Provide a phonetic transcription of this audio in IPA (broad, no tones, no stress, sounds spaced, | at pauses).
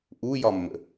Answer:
ʔ u j ɒ mː ə̰